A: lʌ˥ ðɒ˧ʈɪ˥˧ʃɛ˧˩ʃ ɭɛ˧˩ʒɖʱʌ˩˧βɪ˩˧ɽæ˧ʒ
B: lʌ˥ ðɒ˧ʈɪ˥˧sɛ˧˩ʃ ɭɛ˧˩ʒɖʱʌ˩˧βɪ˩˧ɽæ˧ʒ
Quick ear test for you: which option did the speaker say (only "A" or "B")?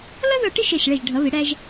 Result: A